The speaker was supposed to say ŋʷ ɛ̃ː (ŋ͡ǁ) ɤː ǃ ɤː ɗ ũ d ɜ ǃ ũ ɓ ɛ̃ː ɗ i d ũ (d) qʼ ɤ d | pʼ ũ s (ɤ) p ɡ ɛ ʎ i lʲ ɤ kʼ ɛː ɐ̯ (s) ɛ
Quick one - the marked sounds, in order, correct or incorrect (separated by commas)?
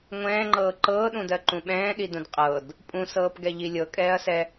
incorrect, correct, incorrect, correct